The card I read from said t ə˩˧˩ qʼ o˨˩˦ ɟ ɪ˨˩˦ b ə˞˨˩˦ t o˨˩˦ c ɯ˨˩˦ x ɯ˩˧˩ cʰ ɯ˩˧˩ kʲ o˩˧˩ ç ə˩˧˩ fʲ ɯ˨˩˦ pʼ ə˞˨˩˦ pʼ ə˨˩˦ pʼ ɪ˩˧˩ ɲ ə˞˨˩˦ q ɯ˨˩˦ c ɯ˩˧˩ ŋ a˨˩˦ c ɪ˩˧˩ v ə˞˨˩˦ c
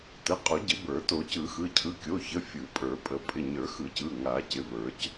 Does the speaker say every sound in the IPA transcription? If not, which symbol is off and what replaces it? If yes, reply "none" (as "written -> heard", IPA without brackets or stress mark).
q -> x